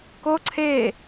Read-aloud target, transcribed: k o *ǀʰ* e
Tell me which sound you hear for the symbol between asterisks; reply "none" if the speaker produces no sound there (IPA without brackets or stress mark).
ǀʰ